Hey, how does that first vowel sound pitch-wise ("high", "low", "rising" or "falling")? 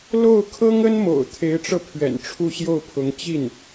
falling